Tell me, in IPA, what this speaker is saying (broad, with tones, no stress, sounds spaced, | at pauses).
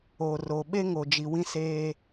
o˨ r o˨ ɓ e˦ ŋ o˨ d͡ʒ i˨ w ĩ˦ s eː˦